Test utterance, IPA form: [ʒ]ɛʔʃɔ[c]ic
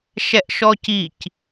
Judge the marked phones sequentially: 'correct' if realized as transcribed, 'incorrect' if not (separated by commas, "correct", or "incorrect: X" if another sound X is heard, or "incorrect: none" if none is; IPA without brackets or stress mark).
incorrect: ʃ, correct